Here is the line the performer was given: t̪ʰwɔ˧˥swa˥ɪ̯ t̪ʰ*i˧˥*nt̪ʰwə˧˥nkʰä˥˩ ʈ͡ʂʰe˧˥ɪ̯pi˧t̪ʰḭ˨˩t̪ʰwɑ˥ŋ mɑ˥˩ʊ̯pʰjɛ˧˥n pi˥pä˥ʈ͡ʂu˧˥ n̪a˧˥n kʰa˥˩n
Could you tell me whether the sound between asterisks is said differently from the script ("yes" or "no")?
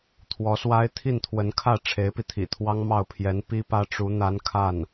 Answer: yes